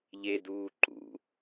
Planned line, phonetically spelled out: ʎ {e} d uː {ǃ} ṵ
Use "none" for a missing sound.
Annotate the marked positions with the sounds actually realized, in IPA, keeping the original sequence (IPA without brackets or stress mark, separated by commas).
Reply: e, ǃ